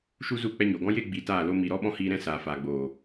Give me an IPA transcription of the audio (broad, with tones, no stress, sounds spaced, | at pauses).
ʃ u˦ z u˦˨ k͡p ɛ˧ ɲ oː˨ ɡ ɔ̃˦ j e˦ ɡ͡b i˨˦ t aː˦˨ l o˦ m i˨ ɾ ɔ˦ ɓ ɔ̃˦ h iː˧ ɾ ɛ̃˦ s aː˨ f aː˨ ɡ͡b oː˨